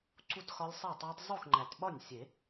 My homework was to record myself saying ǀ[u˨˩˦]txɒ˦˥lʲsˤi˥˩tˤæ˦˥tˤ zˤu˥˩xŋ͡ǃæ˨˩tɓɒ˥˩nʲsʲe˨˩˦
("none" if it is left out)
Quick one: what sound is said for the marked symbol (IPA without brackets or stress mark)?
u˥˩